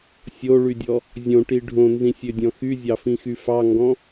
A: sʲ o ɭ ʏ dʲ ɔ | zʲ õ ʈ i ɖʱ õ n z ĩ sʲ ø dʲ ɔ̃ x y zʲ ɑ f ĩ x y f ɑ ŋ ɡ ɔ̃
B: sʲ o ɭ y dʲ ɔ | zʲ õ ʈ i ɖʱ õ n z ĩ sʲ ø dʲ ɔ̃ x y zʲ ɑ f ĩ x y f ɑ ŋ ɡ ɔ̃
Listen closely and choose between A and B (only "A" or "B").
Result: B